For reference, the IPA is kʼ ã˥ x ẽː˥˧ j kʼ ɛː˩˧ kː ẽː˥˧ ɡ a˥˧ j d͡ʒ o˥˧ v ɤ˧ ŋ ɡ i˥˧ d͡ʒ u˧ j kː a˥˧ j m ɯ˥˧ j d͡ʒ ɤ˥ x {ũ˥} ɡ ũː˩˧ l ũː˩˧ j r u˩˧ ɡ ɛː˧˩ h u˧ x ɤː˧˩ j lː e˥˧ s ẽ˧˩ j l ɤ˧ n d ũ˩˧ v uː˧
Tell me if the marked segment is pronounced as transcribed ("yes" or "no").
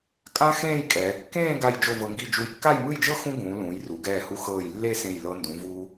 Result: yes